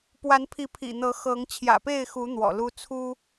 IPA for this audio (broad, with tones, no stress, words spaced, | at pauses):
pwa˨˦npʰi˨˦ pʰḭ˨˩n̪ɤ˨˦ xɤ˨˦ŋ t͡ɕʰjä̰˨˩pe˥˨ɪ̯xu˨˦ n̪wɔ̰˨˩lu˦ t͡sʰu˦